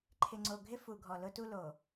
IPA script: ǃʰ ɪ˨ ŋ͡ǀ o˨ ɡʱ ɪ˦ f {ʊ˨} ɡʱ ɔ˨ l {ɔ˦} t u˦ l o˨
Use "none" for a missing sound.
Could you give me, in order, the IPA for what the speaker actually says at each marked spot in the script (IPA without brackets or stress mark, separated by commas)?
u˨, ʊ˦